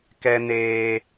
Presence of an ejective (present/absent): absent